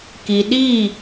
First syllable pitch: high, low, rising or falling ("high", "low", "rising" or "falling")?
low